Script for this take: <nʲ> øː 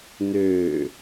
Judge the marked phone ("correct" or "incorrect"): incorrect